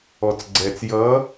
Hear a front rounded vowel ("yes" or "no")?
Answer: no